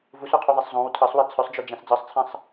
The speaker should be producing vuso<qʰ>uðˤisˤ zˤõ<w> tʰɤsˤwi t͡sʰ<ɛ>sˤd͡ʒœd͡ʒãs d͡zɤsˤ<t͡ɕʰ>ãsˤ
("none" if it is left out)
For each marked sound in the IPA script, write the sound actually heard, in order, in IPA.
qʰ, w, œ, t͡sʰ

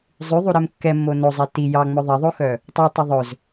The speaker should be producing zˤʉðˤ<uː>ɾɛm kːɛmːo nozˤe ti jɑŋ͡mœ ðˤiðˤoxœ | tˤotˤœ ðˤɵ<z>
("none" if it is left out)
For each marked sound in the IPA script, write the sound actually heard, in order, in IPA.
u, z

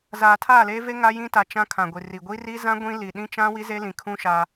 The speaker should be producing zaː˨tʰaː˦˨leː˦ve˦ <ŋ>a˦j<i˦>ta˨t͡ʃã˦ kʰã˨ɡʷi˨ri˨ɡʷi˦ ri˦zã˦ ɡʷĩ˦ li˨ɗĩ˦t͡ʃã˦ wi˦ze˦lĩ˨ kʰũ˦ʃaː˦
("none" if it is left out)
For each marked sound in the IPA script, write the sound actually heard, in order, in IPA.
ŋ, ĩ˦

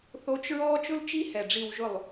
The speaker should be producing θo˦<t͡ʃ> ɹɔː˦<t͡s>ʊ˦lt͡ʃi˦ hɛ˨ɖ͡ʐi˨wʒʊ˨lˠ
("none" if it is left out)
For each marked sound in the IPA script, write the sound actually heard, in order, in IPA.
t͡ʃ, t͡ʃ

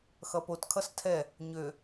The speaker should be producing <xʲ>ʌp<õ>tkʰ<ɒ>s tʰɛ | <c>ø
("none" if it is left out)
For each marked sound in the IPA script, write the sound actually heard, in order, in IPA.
x, o, ʌ, ɲ

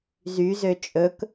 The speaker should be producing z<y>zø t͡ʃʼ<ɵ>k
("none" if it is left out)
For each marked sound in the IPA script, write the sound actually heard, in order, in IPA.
y, ɵ

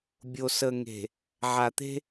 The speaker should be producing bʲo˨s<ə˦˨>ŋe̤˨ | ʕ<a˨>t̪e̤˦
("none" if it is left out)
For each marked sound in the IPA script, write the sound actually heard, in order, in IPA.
ə˨, a˨

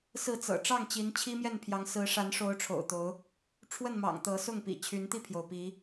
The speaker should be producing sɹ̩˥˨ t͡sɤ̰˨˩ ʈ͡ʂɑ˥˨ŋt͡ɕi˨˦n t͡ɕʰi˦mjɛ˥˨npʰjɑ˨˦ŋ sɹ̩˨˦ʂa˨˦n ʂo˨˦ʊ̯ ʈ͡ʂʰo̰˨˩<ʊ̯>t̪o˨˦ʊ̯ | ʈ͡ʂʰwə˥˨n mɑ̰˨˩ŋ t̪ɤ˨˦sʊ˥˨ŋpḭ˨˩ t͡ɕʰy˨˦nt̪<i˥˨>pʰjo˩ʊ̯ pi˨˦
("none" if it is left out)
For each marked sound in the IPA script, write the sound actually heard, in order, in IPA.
ʊ̯, i˥˨

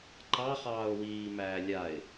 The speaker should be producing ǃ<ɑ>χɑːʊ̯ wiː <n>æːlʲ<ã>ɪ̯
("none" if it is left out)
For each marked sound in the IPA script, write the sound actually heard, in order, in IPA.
ɑ, m, a

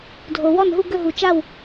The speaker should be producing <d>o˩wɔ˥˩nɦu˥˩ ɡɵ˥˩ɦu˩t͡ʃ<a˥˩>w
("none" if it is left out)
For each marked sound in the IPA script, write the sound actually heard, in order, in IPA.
dʱ, a˥˩

